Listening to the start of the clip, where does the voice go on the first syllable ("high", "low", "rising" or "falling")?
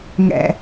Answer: low